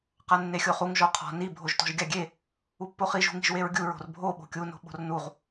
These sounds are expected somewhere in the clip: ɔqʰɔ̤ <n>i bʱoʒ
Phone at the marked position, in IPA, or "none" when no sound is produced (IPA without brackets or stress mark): n